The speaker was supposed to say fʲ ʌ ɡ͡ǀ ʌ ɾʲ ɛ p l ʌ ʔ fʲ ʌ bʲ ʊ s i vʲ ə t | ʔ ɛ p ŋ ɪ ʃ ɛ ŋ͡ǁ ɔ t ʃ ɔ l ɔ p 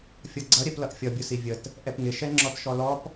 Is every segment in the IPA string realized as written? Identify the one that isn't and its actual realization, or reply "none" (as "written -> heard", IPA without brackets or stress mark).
none